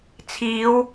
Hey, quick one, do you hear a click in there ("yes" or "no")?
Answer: no